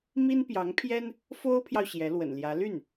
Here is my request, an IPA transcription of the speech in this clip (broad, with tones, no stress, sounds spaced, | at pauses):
m i˥ n p j ɑ˧˥ ŋ pʰ j ɛ˥ n | f o˥ ʊ̯ pʰ j ɑ˨ ʊ̯ ɕ j ɛ˧˥ l w ə̰˨˩ n l j ä˧˥ l y˥˩ n